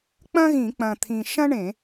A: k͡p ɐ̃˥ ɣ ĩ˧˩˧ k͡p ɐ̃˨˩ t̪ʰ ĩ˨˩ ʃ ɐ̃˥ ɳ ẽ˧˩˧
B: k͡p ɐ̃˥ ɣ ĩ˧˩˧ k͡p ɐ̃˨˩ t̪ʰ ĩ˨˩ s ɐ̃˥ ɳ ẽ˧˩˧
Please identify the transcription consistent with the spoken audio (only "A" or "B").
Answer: A